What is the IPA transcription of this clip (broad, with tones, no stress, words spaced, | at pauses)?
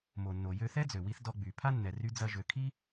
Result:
mo˩nːo˩ jø˧θɛ˥d͡zø˩wi˧θ dɔ˧ɡ͡by˩ pʰa˥nːɛ˩ry˧ d͡zɐ˧ʒø˩kʰi˥